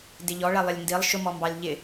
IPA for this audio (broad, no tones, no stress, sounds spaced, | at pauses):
d ɪ ʎ ɔ ɭ ɛ lˠ ɪ lʲ n d i lˠ ʃ ʊ m ɔ m b ɑ lʲ ʎ ɪ